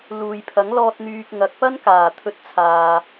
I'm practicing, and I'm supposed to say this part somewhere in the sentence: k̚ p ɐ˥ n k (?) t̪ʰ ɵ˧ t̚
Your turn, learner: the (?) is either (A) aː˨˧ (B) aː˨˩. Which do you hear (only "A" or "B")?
B